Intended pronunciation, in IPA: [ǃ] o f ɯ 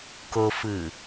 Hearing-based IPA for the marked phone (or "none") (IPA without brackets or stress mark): k